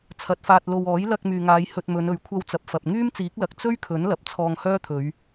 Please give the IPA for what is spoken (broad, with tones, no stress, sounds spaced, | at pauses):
t͡sʰ ɐ˨˥ t̚ f aː˧ t̚ l o˧ w ɔː˨˥ j l ɐ˧ k̚ m yː˨ ŋ aː˨˧ j h ɵ˧ t̚ m ɵ˨˧ n ɵ˨ ɥ kʷʰ ɐ˧ w t͡s ɐ˨ p̚ f ɐ˨ p̚ ŋ yː˥ m t͡s iː˨˥ k̚ l ɐ˨˥ k̚ t͡s ɵ˥ ɥ kʰ ɵ˨˥ n l ɐ˨ p̚ t͡sʰ ɔː˧ ŋ h œː˥ t̪ʰ ɵ˨˧ ɥ